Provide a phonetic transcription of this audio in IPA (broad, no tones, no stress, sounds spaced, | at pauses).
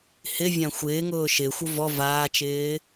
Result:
h ɪ vʲ ã xʷ ɪː ŋ ʊː ʃ ɪː xʷ o v ɔ v aː t͡ʃ ɪː